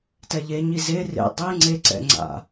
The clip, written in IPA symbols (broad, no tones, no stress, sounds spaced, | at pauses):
t ɛ ʎ e ɲ i z e r ḛ dˤ i ŋ͡ǀ e ǀ ɛ̰ ŋ͡ǀ a̰